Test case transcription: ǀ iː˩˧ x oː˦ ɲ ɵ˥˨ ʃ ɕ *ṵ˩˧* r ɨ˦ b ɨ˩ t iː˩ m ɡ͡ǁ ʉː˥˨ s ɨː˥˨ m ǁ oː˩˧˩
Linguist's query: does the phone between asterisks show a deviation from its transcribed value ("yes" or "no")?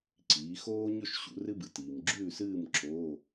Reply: no